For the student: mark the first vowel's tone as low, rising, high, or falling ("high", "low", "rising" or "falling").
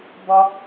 high